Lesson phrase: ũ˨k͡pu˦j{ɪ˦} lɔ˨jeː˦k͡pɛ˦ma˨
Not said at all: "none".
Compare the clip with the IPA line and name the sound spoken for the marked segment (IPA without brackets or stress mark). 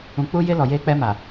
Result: ɪ˦